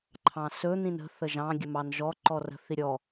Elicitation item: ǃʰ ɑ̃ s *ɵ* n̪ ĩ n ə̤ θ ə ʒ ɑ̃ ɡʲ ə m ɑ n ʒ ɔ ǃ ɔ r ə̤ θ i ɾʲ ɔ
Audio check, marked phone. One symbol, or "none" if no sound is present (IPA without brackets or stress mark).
ɵ